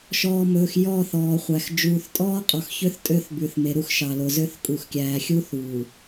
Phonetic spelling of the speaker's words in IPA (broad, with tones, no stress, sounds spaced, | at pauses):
ʃ ɔː˨ m ɵː˨ x j ɔ˦˨ θ ɔː˨ χʷ æ˨ x d͡ʒ uː˨ θ tʼ ɔː˦ qʼ ɔ˨ x ç ø˦ θ tʼ ø˦ θ b ʉ˨ θ m e˨ ɾ u˦ x ʃ ɑ˨ l o˨ z ø˦ θ kʼ u˨ x kʲ æː˨ xʲ u˦ θ uː˨